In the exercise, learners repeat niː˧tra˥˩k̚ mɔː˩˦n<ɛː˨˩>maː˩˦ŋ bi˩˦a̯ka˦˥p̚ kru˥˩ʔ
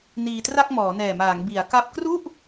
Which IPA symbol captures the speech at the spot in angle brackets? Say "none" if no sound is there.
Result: ɛː˨˩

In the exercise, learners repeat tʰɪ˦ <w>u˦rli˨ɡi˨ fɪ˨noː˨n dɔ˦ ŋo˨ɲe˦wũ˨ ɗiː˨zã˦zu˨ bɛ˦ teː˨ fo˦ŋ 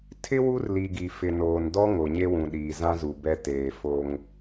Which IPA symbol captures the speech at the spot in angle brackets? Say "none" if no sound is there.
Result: w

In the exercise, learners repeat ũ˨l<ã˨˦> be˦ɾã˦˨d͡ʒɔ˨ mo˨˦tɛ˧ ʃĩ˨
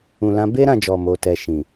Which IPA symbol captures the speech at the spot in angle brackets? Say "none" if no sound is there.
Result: ã˨˦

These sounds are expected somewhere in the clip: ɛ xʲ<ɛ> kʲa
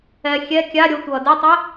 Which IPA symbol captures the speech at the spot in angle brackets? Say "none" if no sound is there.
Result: ɛ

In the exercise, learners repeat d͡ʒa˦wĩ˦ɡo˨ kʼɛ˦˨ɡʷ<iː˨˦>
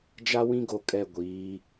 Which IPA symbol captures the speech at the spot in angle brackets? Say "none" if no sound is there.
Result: iː˨˦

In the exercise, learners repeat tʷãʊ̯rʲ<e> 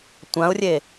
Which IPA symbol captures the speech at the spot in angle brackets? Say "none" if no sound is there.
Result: e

